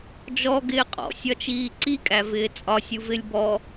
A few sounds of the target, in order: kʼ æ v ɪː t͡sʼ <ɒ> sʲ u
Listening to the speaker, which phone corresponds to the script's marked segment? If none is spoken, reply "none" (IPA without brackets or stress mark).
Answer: ɒ